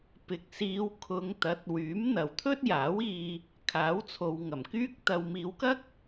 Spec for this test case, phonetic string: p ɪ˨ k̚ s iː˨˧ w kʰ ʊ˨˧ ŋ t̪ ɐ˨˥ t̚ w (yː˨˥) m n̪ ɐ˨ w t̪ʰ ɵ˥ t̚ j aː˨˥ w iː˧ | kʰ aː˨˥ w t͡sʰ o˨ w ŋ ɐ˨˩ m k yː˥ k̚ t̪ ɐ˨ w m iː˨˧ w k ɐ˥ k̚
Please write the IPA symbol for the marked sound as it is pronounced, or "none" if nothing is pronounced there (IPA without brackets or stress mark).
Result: yː˨˥